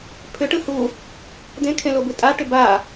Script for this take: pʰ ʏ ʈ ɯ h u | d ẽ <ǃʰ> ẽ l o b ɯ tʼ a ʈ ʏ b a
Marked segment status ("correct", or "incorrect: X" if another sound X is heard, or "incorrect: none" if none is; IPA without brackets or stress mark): incorrect: kʰ